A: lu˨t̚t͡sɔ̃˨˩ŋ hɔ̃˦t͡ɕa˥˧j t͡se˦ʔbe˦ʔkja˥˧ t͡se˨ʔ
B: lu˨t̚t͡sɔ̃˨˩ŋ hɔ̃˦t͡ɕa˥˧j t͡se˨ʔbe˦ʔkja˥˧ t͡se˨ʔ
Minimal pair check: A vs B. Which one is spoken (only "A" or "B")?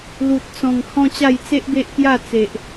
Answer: A